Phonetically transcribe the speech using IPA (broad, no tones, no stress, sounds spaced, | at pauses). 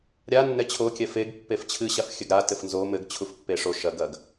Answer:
ɾʲ a nː ɛ t͡ɕʰ o kʲ ɛ f e ɡ pː e f t͡ɕʰ ɨ ɕ a f xʲ ɘ ɡ ɾ a t ɘ f n z o m ɘ ɡ t͡ɕʰ u f pː e ʂ o ʃ ɐ ɡ ɐ ɡ